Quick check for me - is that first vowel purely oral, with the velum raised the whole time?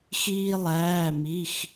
yes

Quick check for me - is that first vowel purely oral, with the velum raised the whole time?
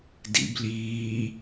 yes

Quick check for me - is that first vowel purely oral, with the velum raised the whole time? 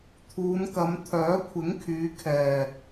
yes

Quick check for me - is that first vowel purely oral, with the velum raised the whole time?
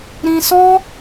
no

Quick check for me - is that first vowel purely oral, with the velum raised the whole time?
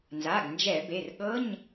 yes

